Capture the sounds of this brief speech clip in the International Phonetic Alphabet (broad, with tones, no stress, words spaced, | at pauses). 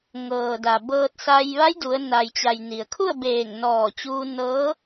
ŋɤː˩da˩bɤː˧t̚ sa˧j ʋa˧˥jdu˩˧ə̯na˩jt͡ɕa˩j ni˩ə̯kʰu˥˨ə̯beː˧˩ŋ nɔː˧˩ t͡ɕuː˧nɤː˧˥